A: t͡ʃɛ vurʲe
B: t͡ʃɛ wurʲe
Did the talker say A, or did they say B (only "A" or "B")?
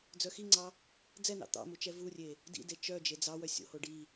A